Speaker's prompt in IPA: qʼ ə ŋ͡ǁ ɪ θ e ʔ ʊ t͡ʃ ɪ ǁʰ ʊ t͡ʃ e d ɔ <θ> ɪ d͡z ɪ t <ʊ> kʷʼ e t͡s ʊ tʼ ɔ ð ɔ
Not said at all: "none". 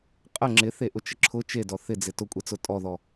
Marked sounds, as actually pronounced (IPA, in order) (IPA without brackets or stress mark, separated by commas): θ, ʊ